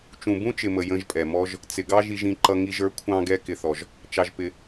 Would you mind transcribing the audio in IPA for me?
t͡ʃ ũ˨ b ũ˦ t͡ʃ ɪ˨ m ə˨ j ə̃˧ ʒ pʼ ɛ˨ m ɔ˦ ʒ | t͡s ɪ˨ ɡ ɑ˦ ʒ i˧ ʒ ĩ˧ ǃ ʌ˧ ŋ i˧ ʒ ə˞˨˦ kʷʰ ɑ̃˦ ɡ ɛ˦ k ɪ˧ θ ɔ˧ ʒ | t͡ʃ ɑ˧ ʒ p ɪ˧

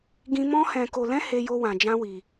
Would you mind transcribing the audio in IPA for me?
ɡ ĩ˦ m ɔ̃˦ h ɛ̃˧ k o˧ l ɛ̃˦ h e˦ j o˦ w ã˧ d͡ʒ ã˦ w i˧

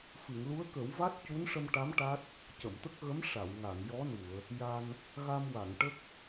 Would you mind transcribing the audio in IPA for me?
f ɨ˨˩˨ ŋ l u˧˥ ə̯ k ə˨˩˦ w v a˦˥ t̚ c u˧˥ n ʂ ə˧ m ʈ a˧˥ m ʈ a˦˥ t̚ | c ə˨˩˨ m t̪ ə˦˥ k̚ ɣ ə˧˥ m ʂ a˨˩˨ w ŋ a˨˩˨ ŋ j ɔ˧˥ n u˨˩˨ ə̯ | j a˧ n | ɣ a˧ m w a˨˩˨ ŋ ʈ ə˦˥ k̚

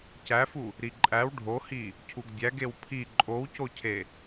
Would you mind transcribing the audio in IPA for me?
c æ f u | ɾ i ǃʼ æ w ɖʱ o h i | cʰ u ɡ dʲ æ ɡ e w pʰ i ǃʼ o w c o cʰ e

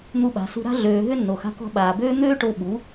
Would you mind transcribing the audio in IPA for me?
n̪ u˧ ɓ a̤˨ s ṳ˧ ɾ a̤˦ ɮ øː˨ ɦ ʏ˦ nː o˨ x a̤˧ k ɔ̤˧ ɓ aː˨ b øː˦ n̪ øː˦ ʈ o˧ ɓ u˨˦

